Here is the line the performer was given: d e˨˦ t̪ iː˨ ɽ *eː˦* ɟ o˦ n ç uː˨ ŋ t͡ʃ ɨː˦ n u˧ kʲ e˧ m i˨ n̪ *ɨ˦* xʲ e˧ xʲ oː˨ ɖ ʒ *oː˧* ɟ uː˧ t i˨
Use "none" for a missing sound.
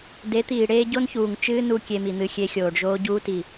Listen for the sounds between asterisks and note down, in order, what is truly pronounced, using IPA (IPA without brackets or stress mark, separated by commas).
eː˦, ɨ˦, oː˧